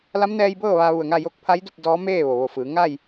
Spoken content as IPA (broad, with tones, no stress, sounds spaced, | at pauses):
l a˧˥ m n ɛː˧ j b ɤː˥˨ ʋ aː˧ ʋ u˧˩ ə̯ ŋ a˥˨ j o˧˥ k̚ pʰ a˧˥ j d u˥˨ p̚ d ɔː˧˥ m eː˥˨ ʋ o˩ ʋ o˧˩ f ɯː˩˧ ŋ a˥˨ j